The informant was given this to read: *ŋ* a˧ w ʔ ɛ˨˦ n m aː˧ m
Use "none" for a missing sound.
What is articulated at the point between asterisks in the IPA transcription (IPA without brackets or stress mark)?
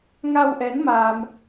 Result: ŋ